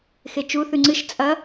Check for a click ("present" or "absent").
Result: present